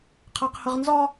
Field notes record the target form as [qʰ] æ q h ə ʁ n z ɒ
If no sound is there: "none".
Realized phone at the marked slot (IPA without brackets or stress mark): qʰ